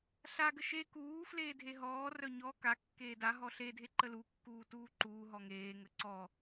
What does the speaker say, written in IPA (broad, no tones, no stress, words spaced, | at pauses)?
ɬaɡə ʃe kuː fleːdʱeɦɔːrœ ɲɔ kakːeː daɦɔ ɬedʱe ǃəlukːuː tuːǃuːɦɔ ŋeːŋə ǀɔ